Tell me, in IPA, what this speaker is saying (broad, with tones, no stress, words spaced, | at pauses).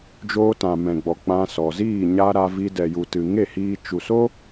d͡ʒoː˧tã˨ mɛ̃˨ɡ͡bɔ˨ k͡pã˧sɔ˨ziː˦˨ ɲa˧ ɾa˧vi˧ dɛ˨ju˨tɨ˨ ŋe˦˨hiː˧ t͡ʃu˨so˦